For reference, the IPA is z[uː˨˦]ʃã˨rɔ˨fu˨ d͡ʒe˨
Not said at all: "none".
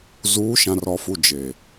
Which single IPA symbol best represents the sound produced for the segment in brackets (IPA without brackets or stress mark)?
uː˨˦